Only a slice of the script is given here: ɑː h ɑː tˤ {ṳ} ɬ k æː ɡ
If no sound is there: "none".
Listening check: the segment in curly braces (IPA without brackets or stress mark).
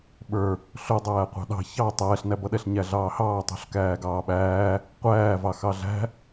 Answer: ṳ